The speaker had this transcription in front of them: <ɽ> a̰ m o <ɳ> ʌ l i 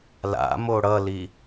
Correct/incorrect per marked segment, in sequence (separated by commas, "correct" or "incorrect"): incorrect, incorrect